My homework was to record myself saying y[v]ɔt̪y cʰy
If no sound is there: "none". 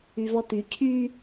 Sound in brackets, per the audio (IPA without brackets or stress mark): v